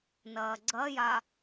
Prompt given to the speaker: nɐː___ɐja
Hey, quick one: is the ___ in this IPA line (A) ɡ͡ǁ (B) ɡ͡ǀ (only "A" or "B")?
B